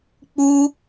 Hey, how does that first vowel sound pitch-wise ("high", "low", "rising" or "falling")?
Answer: high